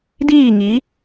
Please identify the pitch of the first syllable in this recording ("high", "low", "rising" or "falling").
falling